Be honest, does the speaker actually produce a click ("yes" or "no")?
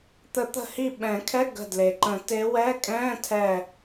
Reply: yes